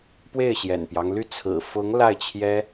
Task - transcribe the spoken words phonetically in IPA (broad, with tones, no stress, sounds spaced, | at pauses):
p w e˥˩ ɪ̯ ɕ j ɛ̰˨˩ n p j ɑ˦ ŋ l y˥˩ t͡sʰ ɹ̩˨˩ f ʊ˧˥ ŋ l a˥˩ ɪ̯ t͡ɕʰ j ɛ˥